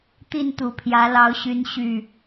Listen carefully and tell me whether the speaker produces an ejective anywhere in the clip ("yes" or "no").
no